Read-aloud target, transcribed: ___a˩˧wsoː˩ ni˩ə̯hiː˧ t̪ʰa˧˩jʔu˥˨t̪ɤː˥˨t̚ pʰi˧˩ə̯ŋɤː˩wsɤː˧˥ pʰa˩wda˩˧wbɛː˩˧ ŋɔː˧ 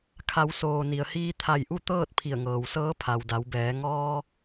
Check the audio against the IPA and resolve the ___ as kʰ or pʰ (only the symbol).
kʰ